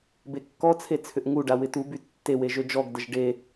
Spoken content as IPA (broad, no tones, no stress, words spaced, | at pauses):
bekːɔt͡sʰe t͡sʰʏʔŋuɖa wɪtuby tːewe ʒød͡ʒɔɡdəʒ ɖe